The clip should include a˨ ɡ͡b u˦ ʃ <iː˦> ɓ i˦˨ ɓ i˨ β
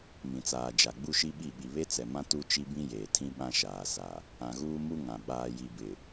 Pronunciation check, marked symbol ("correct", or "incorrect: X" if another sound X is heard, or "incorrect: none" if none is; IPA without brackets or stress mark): incorrect: i˦